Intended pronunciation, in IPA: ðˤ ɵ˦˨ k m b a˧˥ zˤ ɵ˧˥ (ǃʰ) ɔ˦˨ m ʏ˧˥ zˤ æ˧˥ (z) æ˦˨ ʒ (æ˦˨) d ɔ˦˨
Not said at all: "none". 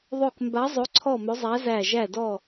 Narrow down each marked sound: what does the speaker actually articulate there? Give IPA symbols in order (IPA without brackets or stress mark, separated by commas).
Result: ǀʰ, z, æ˦˨